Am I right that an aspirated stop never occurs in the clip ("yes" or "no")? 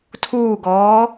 no